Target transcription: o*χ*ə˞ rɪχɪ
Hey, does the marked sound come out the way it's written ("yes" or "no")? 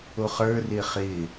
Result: yes